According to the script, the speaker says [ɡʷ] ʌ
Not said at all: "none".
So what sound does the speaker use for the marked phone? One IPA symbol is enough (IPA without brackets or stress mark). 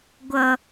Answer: ɡʷ